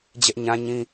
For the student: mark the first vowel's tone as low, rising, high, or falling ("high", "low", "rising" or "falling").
high